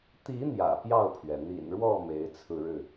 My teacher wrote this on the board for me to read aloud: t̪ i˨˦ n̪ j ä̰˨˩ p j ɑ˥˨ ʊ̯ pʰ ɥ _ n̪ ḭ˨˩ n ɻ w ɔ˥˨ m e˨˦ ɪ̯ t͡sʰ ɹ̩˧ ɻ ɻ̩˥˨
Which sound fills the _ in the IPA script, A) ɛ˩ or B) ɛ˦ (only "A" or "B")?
A